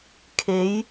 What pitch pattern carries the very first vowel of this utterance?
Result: rising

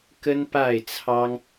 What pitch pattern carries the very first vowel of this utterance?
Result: high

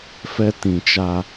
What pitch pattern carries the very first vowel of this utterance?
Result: high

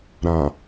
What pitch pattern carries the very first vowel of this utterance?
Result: low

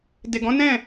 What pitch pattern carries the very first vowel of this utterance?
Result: low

